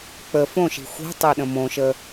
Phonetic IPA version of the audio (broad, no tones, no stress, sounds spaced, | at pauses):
k͡p ə f õ ʃ i̤ xʷ i̤ tˤ e ɗ ə̃ m õ ʃ ə